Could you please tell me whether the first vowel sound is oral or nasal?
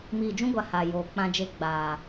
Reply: oral